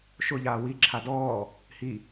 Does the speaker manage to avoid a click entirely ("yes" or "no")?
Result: no